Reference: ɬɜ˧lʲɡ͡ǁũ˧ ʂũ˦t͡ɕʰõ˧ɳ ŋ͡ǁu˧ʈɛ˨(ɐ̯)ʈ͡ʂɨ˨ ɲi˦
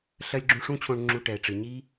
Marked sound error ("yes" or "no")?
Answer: yes